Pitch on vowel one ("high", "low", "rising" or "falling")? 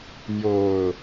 low